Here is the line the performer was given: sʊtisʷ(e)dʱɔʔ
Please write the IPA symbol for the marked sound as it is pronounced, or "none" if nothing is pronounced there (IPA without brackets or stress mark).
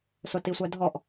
ɛ